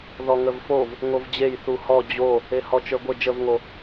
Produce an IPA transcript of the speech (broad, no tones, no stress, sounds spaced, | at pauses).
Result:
ð ɔ ŋ ə v f o v | ŋ o v d͡ʑ e j θ u h ɔ d͡ʑ o | e h ɔ t͡ʃ ə˞ ɡʷ ə d͡ʒ ə v ŋ o